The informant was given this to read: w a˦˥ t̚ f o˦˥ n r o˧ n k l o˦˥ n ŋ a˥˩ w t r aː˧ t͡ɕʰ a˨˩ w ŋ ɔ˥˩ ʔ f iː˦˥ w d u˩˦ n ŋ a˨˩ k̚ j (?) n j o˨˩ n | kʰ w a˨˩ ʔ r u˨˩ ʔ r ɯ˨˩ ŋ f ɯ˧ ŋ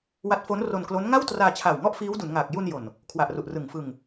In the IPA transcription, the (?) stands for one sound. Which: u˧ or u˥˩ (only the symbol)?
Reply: u˧